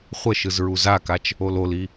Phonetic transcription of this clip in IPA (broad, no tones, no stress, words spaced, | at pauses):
χʷə ʃɯzɹuzakat͡ʃ | ololi